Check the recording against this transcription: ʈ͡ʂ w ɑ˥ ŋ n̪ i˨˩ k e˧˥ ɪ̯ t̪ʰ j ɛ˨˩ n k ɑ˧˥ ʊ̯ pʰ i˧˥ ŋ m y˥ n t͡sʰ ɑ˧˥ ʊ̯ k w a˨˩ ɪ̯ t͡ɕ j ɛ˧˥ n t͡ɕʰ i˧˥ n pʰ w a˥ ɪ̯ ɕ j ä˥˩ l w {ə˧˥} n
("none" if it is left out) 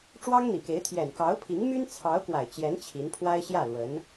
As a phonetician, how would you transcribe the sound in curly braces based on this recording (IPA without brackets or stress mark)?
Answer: ə˧˥